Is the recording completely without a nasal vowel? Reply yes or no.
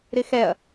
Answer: yes